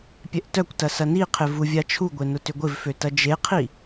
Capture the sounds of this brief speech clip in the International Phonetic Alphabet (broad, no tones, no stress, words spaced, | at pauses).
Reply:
pʲɛʔtœkʷtɐ sɐniqʰɪ vuvʲat͡ʃʰuɡʷe nʊtʏɡʷɪvfø tɐd͡ʒeqʰi